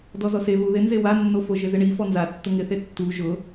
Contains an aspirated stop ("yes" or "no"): no